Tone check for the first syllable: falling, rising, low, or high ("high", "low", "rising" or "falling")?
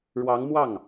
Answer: rising